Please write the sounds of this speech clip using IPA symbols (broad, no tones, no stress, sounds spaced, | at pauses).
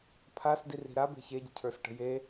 pʰ a s d i r i̤ ɾ a b e̤ ç e ɟ ə̤ cʰ ə˞ s ʈ ə̤ j e